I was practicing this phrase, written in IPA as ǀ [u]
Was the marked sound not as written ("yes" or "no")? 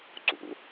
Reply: yes